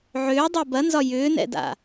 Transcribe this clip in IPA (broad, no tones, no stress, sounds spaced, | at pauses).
ʕ ʏː dˤ ɜ b ɐ n z ɒ j ʏː n ɛ̰ d a̰